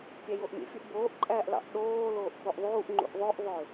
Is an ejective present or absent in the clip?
present